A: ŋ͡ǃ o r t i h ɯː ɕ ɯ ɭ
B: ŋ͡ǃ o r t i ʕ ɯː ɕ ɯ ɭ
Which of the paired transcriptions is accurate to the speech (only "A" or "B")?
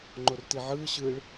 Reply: B